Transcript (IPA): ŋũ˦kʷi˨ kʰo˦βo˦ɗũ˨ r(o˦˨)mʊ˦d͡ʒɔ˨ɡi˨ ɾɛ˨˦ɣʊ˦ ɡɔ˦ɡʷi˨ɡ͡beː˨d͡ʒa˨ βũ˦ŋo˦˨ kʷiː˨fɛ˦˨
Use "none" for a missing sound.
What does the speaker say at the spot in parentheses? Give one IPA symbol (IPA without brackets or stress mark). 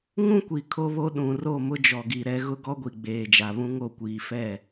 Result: o˦˨